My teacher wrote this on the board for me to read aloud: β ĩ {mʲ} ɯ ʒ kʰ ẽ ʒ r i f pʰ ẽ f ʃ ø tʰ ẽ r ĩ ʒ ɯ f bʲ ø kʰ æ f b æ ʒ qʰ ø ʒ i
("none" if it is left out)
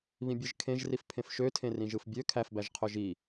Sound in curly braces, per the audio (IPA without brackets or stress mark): bʲ